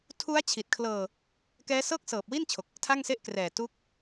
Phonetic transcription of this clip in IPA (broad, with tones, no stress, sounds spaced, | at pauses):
tʰ u˦˥ a̯ t͡ɕʰ i˨˩ t̚ kʰ l ɤː˧ | k ɛː˦˥ s ɤː˥˩ k̚ s ɤː˨˩ p̚ w i˥˩ n t͡ɕʰ o˨˩ k̚ | tʰ a˥˩ ŋ s e˥˩ ʔ k r ɛː˨˩ t u˦˥ k̚